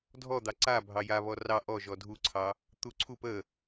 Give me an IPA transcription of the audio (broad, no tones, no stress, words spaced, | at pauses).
dʱɔd̪ɑ ǀa bʱɑja βɔrɑ ʔɔ ʒɔdʱuǀʰɑ | t̪uǀʰup ə